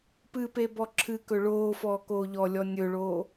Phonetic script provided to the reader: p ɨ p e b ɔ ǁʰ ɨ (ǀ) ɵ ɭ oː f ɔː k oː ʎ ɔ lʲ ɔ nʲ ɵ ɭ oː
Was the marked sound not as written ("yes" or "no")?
yes